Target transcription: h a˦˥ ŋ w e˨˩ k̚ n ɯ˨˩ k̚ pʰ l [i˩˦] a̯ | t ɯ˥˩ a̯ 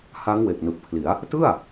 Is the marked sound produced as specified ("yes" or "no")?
yes